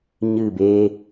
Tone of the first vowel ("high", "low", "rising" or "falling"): falling